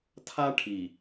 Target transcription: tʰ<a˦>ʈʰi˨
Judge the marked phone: correct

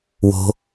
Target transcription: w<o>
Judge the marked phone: incorrect: o̤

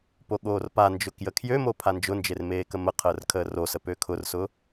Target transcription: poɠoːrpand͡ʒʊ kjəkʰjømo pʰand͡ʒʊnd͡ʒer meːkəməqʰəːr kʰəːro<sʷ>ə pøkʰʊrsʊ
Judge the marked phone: incorrect: s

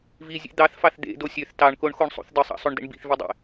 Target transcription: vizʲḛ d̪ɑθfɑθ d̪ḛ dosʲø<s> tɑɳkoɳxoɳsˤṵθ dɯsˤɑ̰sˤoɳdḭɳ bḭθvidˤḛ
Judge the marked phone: incorrect: θ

